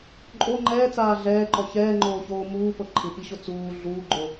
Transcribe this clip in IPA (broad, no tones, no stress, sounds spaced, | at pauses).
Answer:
ǃʼ o ŋ͡ǃ ɛː t͡s aː ɮ ɛː ǃ ɔ ç ɛː ŋ͡ǃ oː ç oː m uː p ɤ ǃʰ ɯ p i ɕ o t͡s uː ɮ uː ɡ͡ǃ o